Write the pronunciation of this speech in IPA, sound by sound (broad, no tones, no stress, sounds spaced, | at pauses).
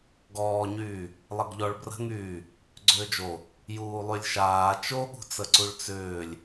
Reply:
ɡ ɔː ɲ yː | lˠ ɐ ɡ ʎ ɔ ɭ b r ə̤ ŋ yː | ɡ͡ǀ ʏː d͡ʒ o | j uː lˠ y lʲ ʃ aː t͡ʃ o ɠ ṳ t͡s ə ǀ u ɭ t͡s ʏː lʲ